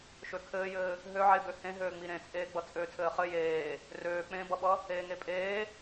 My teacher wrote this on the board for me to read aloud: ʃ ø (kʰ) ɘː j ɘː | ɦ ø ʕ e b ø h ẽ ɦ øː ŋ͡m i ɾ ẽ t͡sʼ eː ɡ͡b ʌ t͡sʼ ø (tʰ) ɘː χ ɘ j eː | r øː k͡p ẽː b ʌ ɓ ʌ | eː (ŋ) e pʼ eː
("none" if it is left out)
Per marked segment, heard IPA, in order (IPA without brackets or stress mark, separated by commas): kʰ, tʰ, ŋ